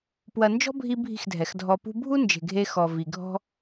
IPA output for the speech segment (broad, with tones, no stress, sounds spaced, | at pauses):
p w ɐ˨ n d͡ʒ ɔ̤˦ bʱ i˧ bʱ i̤˦˨ x dʱ ɛ˨ x dʱ ɔ˧ p ṳ˧ bʱ u˦ n d͡ʒ e̤˨ ɡʱ e˧ x ɔ˨ v i˨ ɡʱ ɔ̤˦